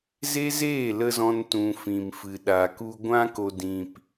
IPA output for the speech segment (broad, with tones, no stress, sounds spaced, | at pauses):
z e˦ z eː˦˨ l ə˧ z ɔ̃˧ n t ũ˨ f ĩ˨ m f ɨ˨ ɗ a˨ k u˧ ɡʷ ã˧ k o˨ d ĩ˨ p